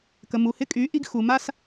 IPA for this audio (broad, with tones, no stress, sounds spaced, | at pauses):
k ə˩ m u˩ h ɪ˧˥ kʼ y˩˧ ʔ i˧ ɡ x u˩ m a˧ s